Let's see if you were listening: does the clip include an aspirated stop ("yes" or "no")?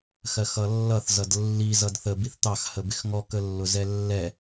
no